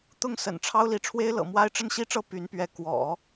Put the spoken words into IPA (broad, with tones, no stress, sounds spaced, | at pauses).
t̪ ʊ˥˩ ŋ s ə̰˨˩ n ʈ͡ʂʰ ɑ˥ ʊ̯ l i˧˥ ʈ͡ʂʰ w e˥ ɪ̯ l ɤ̰˨˩ m w a˥ ɪ̯ ʈ͡ʂ ə˥˧ n ɕ i˥˧ ʈ͡ʂ ɤ˥˩ p y˧˥ n p ɥ ɛ˧˥ k w ɔ̰˨˩˦